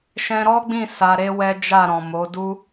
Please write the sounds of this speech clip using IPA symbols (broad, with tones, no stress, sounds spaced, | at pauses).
ʃ ɛ̃˧ ɾ ɔ˦ ɡ͡b ĩ˦˨ s a˧ ɾ e˦ w ɛ˦ d͡ʒ a˦˨ ɾ ɔ̃˨ m o˨˦ d u˦